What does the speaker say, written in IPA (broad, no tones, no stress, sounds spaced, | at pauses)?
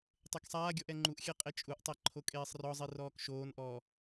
tˤ e k sˤ aː ɡʲ ɔ ʔ ɛ ŋ͡ǃ u ʔ xʲ ɛ qʼ e t͡ʃʼ u ʔ tˤ ɛ ǃʰ o kʼ eː sˤ r ɔ zˤ i r ɔː k ʃ oː n ʔ ɔː